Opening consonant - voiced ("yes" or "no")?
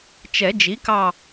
no